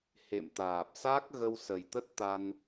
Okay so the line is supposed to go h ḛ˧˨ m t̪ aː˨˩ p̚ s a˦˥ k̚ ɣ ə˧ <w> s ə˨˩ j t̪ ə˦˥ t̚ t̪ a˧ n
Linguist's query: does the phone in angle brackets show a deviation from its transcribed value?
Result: no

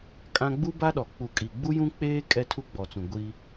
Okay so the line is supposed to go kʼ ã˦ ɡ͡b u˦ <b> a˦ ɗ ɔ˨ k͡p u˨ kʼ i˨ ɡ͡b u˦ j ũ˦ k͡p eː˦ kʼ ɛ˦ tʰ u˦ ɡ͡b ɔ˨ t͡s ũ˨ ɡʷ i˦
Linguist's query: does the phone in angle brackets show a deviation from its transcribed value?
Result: no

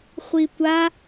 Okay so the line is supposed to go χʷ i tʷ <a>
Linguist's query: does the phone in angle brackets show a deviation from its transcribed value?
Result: no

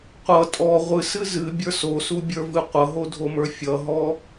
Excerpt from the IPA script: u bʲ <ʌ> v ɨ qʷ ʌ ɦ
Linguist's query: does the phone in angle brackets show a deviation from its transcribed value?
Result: yes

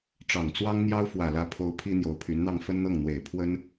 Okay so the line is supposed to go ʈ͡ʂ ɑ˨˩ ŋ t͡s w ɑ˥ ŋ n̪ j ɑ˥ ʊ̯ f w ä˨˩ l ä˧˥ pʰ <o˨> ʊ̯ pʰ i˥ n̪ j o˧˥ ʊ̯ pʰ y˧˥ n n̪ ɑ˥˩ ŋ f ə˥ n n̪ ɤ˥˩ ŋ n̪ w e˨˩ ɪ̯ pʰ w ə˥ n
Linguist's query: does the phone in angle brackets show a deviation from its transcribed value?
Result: yes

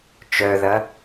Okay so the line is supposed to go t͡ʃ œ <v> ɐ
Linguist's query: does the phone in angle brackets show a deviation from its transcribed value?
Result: yes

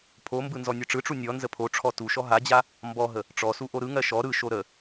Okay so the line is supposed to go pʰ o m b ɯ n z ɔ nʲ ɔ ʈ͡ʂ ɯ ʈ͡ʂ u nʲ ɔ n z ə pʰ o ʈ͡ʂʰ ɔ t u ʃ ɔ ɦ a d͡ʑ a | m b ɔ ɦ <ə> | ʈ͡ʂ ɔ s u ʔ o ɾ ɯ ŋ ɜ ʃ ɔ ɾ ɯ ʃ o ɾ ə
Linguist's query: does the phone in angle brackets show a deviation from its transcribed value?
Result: no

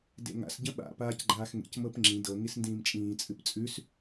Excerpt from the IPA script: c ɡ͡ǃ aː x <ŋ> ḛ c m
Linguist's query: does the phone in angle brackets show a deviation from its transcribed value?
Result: no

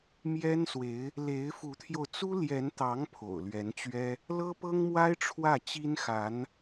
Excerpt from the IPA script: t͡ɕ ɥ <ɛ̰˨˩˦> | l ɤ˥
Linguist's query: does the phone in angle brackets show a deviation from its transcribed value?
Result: yes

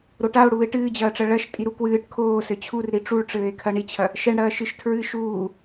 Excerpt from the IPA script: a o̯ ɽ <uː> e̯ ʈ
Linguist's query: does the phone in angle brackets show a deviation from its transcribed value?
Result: no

